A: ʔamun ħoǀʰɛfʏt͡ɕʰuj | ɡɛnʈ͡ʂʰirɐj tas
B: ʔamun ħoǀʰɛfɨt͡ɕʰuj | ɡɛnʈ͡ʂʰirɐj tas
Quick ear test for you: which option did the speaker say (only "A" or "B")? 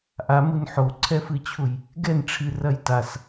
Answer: B